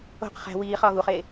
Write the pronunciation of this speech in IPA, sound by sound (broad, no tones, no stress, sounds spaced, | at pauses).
o̤ q χ æ̤ w iː χ ɒː ɣ u χ eː